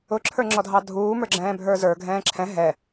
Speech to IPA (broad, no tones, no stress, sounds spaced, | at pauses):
ʊ ǁʰ ə˞ ŋ͡ǁ ɔ dʱ ɑ dʱ uː m ə˞ ɡ͡ǁ ɛ̃ː bʱ ə˞ z ə˞ ɡʱ ɛ̃ː ǁʰ ɛ̃ ɦ ɛ